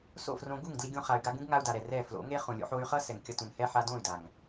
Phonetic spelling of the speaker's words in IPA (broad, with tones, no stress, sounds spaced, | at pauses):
s o̰˦˨ f r õ˧ ɡ u˦˨ ŋ d l i˧ ɡʲ õ˧ χ a˧ y̯ ɡ a˦ ɡ ũ˦ ɡ ŋ a˧ u̯ d a˨ ɾ ɛ˨ r ɛ˦˨ f l o̰˨˦ ŋ e˦ χ ũ˨ lʲ o̰˧ ħ o˧ y̯ χ ʌ˦ s ɛ˨ ŋ kʲ ʌ˧ t ũ˨ n h ɛ˦ ħ a˧ d õ˦˨ y̯ d a˨ ŋ